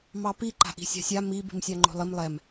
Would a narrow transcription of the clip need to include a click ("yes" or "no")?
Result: yes